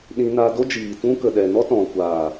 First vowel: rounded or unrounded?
unrounded